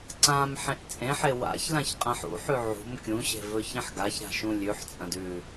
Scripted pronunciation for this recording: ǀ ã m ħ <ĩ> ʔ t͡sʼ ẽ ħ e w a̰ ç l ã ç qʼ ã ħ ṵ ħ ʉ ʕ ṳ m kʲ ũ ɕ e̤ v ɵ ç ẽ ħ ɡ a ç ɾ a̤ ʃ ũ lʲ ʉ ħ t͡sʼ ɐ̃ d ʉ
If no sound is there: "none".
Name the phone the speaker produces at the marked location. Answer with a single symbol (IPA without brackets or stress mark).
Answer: ẽ